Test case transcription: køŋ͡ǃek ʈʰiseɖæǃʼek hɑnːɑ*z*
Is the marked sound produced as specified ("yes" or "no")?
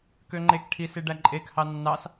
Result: no